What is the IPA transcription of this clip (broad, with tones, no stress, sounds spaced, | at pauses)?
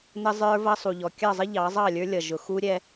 n ə˦ zˤ ə˞˦ v ʌ˦ sˤ u˨ ʎ ɔ˨ kʲ ɑ˦˨ zˤ ə˦ ʎ ɑ˨˦ zˤ ɑ˦˨ lʲ ə˞˦ lʲ ʌ˨ ʒ ʊ˨ x u˦ ɾʲ ɛ˦